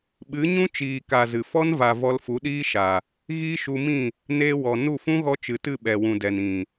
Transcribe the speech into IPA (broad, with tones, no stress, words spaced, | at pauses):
ɓɨ˨˦ɲũ˦ t͡ʃiː˨ka˨ zɨ˨ fɔ˦nva˨ vɔ˧lfu˨˦ɗiː˦ʃa˨ | ɣiː˦ʃu˧mĩ˦˨ | neː˧wɔ˨nu˦˨ fũ˦ɣɔ˧ t͡ʃɨ˨tɨ˦˨ɓɛ˨wũ˨ dɛ˨nĩ˨